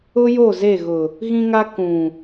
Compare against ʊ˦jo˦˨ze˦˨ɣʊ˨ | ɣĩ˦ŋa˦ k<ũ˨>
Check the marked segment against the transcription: correct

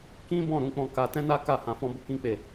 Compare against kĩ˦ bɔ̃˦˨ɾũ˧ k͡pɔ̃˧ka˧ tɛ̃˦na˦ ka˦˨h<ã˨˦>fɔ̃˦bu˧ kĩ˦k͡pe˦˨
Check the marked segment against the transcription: correct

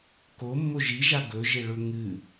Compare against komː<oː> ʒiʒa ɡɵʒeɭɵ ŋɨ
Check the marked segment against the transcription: incorrect: o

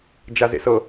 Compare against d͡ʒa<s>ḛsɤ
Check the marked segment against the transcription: incorrect: z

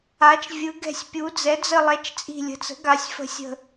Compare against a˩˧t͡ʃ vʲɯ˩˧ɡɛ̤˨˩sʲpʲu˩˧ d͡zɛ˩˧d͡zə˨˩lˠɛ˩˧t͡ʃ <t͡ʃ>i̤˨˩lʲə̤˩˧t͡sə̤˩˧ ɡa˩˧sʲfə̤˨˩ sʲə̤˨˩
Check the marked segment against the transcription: incorrect: t͡sʼ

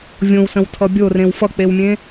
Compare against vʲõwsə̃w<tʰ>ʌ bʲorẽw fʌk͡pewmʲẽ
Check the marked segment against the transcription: correct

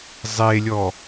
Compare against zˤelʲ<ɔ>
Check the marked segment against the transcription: correct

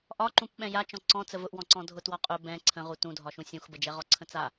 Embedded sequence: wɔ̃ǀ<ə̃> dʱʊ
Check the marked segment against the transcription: incorrect: ɔ̃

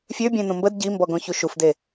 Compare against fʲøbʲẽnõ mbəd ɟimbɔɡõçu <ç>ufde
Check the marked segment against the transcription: incorrect: ʃ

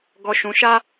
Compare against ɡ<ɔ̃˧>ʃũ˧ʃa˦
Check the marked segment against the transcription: incorrect: ɔ˧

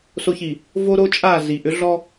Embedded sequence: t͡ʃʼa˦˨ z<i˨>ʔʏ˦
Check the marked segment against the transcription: correct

